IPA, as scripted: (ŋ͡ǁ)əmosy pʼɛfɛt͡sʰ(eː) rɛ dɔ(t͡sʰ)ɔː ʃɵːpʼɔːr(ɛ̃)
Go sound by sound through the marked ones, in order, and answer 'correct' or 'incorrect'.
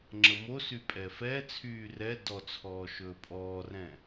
correct, incorrect: yː, correct, correct

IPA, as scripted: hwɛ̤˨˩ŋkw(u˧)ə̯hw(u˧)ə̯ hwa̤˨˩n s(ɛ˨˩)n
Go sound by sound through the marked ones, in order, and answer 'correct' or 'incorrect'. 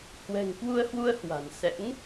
correct, correct, incorrect: ɛ̰˧˥

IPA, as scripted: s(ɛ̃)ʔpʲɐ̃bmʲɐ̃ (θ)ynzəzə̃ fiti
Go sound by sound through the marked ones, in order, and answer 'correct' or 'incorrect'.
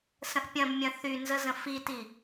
incorrect: ə̃, correct

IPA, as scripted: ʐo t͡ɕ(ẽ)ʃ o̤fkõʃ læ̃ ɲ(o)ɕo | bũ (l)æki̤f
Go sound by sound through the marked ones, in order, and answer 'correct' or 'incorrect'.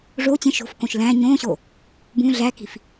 correct, incorrect: õ, incorrect: ɮ

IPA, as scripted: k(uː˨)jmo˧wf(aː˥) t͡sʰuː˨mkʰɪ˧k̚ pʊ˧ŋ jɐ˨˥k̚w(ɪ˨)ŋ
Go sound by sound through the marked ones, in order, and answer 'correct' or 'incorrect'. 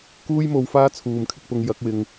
incorrect: uː˥, correct, correct

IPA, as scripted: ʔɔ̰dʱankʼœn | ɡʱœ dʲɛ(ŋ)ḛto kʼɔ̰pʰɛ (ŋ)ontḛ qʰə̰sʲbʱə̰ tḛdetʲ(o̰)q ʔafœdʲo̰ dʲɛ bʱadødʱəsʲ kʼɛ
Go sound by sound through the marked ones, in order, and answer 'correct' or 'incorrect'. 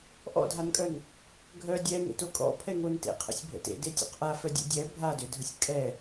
correct, correct, correct

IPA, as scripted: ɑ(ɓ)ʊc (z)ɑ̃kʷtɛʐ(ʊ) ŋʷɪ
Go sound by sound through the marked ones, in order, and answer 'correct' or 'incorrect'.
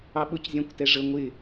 correct, incorrect: zʲ, incorrect: ə

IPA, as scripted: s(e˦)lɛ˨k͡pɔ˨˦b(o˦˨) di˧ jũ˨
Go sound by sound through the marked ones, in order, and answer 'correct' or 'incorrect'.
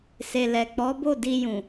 incorrect: e˨, correct

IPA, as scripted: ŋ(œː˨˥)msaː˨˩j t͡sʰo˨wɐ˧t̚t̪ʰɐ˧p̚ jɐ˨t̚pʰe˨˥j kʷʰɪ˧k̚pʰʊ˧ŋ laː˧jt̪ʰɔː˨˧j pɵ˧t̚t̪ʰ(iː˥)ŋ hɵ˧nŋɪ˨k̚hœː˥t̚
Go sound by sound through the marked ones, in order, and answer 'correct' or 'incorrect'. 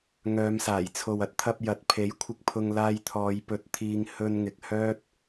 incorrect: œː˨˧, incorrect: iː˧

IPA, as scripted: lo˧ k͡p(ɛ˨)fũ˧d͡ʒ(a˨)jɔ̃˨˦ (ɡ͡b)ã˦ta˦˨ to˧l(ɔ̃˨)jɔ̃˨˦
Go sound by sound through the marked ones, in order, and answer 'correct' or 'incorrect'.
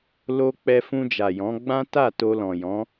incorrect: ɛ˧, correct, correct, correct

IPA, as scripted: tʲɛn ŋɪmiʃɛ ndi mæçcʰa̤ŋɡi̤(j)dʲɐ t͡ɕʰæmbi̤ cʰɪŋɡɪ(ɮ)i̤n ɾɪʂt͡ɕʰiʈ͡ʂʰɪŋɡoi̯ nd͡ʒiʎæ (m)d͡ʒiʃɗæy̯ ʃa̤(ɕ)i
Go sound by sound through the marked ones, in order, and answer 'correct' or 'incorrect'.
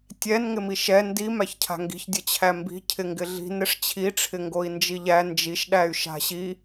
incorrect: ç, correct, incorrect: n, correct

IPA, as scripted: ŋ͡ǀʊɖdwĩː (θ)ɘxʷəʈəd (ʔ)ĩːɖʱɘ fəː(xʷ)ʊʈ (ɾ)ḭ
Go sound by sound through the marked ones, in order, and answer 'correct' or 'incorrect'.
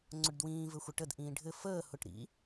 incorrect: v, correct, incorrect: h, correct

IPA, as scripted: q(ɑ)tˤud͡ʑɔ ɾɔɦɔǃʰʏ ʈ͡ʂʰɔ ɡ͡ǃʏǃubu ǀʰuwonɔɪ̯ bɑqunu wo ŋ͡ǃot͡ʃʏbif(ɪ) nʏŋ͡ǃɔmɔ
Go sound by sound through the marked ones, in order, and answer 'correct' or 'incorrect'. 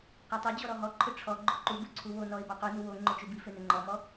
correct, incorrect: ʏ

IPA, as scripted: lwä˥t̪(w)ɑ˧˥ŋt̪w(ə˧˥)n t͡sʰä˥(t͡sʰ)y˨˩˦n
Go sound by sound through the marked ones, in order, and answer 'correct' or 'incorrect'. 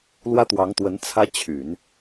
correct, correct, incorrect: t͡ɕʰ

